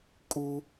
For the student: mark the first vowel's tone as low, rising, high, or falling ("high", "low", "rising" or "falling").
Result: high